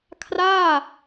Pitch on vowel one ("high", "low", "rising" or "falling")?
falling